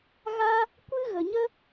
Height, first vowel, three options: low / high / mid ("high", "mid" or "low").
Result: low